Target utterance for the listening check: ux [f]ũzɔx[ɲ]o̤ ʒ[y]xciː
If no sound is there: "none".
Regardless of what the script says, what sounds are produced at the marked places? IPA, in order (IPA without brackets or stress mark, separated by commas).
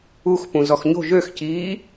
p, ɲ, ø